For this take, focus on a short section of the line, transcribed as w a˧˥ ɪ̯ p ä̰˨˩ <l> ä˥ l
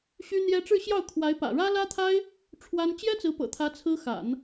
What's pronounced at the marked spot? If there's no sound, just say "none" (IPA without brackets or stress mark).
ɻ